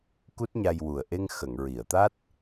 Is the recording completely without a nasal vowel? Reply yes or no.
yes